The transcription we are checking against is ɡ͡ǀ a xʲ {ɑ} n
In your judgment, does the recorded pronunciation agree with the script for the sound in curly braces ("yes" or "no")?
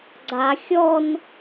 no